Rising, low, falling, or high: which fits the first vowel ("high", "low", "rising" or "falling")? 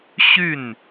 falling